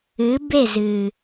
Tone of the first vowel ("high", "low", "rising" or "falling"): rising